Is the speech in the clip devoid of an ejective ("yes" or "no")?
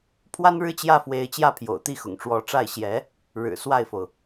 yes